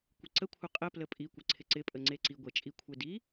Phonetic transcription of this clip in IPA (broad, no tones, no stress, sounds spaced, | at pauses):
kʷ ɪ ǀ ə kʷʰ ə qʼ ə p l ə pʼ i kʷ ə ǀʰ ɪ ǀ ɪ pʼ ə ŋ͡ǀ e ǀ i ɡʷ e t͡ʃʼ i kʷʰ e d i